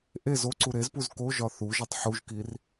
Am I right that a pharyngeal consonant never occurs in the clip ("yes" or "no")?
no